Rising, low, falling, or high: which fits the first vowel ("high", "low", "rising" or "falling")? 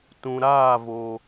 low